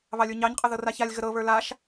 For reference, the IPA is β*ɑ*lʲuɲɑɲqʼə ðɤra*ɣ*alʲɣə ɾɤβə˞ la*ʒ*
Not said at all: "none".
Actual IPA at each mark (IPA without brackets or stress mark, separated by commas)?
ɑ, ç, ʃ